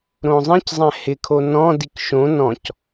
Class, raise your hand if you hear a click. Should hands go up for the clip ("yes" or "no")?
no